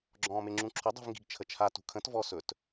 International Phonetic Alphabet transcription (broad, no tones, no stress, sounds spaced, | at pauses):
ɡ͡ǁ ɔ̃ː m e ŋ͡ǁ ũ ǁʰ ɵ dˤ ṳ v ŋ ɡ i̤ ɡ t͡ʃʰ ə t͡ʃʰ a t ṳ kʰ ə̃ t v ɔ s ɵ t